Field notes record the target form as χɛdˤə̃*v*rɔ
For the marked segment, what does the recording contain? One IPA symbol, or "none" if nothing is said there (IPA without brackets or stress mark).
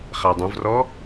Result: v